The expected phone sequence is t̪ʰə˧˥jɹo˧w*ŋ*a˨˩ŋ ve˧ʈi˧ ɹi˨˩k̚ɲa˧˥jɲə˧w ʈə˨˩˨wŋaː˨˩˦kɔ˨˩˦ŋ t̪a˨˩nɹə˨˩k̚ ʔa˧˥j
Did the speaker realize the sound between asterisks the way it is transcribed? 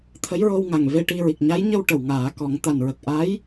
yes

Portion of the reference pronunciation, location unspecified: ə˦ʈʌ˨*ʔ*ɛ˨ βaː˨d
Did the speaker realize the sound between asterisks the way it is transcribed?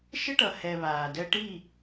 no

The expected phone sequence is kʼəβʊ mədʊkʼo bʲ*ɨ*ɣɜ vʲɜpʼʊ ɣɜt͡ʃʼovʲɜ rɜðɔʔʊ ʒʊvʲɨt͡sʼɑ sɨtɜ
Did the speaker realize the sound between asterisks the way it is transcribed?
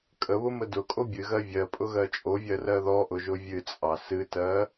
yes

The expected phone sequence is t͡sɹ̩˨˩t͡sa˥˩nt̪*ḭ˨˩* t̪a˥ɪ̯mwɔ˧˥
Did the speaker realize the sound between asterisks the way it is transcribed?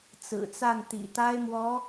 yes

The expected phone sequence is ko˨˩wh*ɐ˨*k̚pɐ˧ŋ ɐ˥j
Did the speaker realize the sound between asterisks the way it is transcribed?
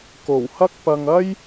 no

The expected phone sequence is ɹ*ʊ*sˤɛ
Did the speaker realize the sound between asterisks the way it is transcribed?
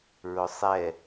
yes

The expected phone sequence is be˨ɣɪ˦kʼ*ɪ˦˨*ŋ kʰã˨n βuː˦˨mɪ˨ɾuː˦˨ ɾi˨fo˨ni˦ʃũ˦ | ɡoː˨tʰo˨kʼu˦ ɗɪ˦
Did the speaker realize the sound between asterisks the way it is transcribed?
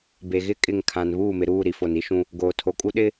yes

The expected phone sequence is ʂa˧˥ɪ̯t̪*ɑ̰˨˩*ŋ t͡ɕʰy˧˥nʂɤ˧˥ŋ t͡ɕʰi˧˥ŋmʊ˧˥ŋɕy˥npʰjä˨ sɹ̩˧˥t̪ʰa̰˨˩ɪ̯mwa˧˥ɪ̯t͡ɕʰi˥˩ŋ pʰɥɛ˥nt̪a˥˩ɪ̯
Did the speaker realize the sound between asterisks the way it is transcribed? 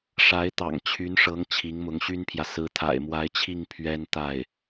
yes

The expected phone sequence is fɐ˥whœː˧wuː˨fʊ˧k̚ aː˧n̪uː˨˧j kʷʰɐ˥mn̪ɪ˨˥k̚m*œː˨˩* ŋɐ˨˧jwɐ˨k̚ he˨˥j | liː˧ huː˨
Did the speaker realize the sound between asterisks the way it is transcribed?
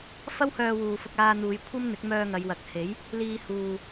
no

